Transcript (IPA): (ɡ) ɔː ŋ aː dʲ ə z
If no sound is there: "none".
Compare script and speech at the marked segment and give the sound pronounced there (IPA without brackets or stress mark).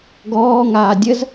ɡ